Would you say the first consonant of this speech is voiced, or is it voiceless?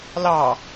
voiced